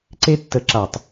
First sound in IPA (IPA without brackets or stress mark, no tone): ǀ